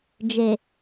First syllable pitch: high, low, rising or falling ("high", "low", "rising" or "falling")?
low